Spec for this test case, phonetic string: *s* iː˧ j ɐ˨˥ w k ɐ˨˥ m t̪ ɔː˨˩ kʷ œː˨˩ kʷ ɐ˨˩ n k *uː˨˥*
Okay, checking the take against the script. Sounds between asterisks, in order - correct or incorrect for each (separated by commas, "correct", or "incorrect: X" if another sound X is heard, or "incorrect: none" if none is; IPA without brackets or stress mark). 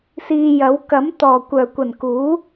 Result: correct, correct